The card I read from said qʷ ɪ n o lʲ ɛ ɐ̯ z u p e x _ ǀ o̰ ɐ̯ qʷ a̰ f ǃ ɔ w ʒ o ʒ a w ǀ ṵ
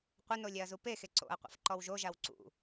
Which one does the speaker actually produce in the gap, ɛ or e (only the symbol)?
e